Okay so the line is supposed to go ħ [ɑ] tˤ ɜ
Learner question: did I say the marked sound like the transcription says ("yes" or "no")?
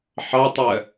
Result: yes